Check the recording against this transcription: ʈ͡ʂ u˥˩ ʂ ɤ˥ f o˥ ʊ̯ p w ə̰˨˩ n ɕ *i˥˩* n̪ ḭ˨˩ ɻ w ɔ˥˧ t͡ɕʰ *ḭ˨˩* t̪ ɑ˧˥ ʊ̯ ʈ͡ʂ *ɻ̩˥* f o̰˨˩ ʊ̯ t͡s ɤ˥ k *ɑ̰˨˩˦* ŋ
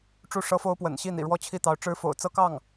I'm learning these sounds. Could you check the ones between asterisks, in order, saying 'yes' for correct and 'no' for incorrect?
yes, no, yes, no

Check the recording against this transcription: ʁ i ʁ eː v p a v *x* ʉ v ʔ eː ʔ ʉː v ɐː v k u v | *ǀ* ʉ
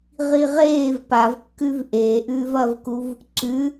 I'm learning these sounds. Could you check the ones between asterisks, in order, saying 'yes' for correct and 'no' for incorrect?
no, yes

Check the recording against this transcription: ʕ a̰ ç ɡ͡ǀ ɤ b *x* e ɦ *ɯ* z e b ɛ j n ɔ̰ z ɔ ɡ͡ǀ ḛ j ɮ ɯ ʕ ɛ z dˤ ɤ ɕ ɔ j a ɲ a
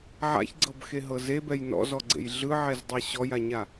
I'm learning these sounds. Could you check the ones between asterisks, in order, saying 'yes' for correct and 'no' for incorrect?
yes, no

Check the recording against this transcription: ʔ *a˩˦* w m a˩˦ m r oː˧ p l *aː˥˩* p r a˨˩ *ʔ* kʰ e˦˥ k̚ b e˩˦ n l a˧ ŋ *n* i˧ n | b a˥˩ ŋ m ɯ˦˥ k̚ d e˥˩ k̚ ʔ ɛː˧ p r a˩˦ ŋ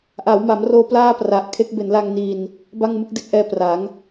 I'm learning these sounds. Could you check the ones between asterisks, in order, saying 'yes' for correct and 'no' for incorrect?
yes, yes, yes, yes

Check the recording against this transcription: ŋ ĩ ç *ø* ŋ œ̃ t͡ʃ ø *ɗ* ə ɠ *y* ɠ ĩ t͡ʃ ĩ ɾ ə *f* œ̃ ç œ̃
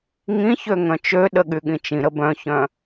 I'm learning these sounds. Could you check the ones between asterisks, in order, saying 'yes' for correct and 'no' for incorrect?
yes, yes, yes, no

